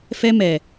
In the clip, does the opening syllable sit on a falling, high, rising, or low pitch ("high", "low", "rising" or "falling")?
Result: high